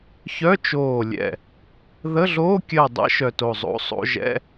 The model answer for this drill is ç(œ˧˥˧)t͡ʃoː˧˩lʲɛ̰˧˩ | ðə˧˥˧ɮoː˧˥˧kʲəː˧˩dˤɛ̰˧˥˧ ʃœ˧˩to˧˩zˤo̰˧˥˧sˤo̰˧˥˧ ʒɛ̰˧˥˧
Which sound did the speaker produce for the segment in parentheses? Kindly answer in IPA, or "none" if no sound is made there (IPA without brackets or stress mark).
œ˧˥˧